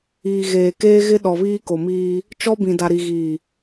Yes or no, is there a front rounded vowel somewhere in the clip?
no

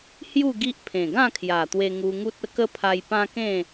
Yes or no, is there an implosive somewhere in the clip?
no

